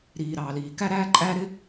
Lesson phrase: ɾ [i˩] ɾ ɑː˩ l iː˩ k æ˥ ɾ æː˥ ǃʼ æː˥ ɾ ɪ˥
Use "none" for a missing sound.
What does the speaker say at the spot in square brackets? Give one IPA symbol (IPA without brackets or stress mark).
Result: iː˩